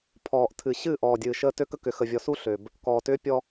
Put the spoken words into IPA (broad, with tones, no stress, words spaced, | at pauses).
pʰɔː˨ʔtʰɨ˨ ɕɨː˦˨ʔɔː˨ dʲɨː˨ ʃəː˦ tø˦kə˦ kʏ˨xə˨vʲɔ˨su˦ ɬø˨b | kɔː˨tʏː˦pʲɔ˦